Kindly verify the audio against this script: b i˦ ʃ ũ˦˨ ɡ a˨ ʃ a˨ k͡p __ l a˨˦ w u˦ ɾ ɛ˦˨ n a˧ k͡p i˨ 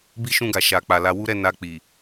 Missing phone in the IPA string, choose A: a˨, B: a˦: A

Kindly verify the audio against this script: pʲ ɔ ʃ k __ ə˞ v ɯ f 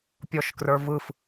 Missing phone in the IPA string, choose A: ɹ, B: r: B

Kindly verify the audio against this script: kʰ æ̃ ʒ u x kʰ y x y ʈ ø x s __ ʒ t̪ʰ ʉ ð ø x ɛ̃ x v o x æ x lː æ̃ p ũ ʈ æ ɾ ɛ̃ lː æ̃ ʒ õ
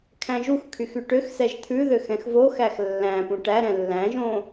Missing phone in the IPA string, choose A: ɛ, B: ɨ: A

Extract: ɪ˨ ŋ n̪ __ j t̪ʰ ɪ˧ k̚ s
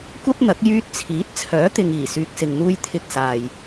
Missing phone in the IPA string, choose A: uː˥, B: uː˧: B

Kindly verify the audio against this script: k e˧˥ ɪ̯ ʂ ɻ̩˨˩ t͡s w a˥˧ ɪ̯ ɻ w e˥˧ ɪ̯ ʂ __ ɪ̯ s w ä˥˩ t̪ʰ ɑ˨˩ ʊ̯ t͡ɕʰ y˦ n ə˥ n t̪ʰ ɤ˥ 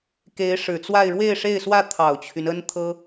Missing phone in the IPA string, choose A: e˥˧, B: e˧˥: A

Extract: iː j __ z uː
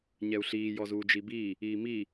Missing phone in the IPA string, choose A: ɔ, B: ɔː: A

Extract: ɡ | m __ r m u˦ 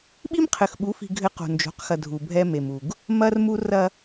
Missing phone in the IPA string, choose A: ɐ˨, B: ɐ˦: B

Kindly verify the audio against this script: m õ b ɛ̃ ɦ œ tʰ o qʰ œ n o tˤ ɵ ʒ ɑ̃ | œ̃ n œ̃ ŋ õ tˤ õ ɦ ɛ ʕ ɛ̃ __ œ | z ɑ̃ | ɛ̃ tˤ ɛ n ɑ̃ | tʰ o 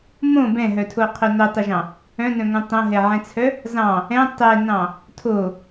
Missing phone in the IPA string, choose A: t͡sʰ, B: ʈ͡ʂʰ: A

